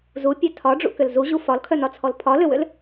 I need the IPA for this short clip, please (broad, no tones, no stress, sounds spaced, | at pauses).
z u pʲ œ tʰ ɒ ɖ͡ʐ ṵ k ʏ l z u ʑ u f ɒ l kʰ œ n ɒ t͡sʰ ɔ l pʰ ɒ l ʏ w ʏ l